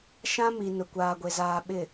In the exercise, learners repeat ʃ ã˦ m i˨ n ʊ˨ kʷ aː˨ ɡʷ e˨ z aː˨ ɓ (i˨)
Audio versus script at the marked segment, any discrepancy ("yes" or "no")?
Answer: yes